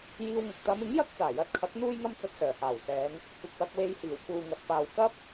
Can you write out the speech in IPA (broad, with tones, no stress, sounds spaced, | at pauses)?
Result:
j iː˧ w ŋ ʊ˨ k̚ t̪ ɐ˨˧ m ɪ˨˥ ŋ j ɐ˥ k̚ t͡s aː˨˩ j ɐ˨˥ t̚ kʰ ɐ˨˥ k̚ n̪ uː˧ j ŋ ɐ˧ m t͡s ɐ˧ t̚ s œː˨˩ h aː˨˩ w s ɛː˨˧ ŋ | kʷ ɐ˨ k̚ w ɐ˧ k̚ w e˧ j h iː˨˩ w k uː˨ ŋ ɐ˨ t̚ p aː˨ w k ɐ˥ p̚